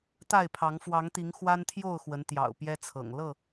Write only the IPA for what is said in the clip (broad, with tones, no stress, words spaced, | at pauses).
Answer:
t̪a˥˨ɪ̯pʰɑ˨˦ŋ fwɑ˨˦ŋt̪i˨˦ŋ xwa˦nt̪ʰjo˥˨ʊ̯ xwə˨˦nt̪jɑ̰˨˩ʊ̯ pjɛ˦t͡sʰɤ̰˨˩ŋ lɤ˥˨